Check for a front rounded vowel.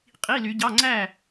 present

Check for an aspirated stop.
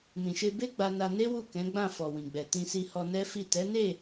absent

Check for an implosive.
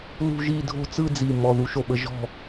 present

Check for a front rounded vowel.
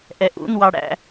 absent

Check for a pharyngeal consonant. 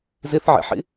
present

